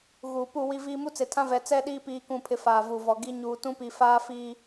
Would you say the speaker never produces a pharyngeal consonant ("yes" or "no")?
yes